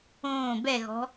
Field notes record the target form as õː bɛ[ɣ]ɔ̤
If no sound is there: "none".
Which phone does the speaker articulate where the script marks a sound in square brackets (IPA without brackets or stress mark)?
ɣ